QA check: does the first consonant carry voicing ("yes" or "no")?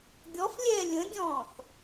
yes